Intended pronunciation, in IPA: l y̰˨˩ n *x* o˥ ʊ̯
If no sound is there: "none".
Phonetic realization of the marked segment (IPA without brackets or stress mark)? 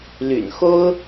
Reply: x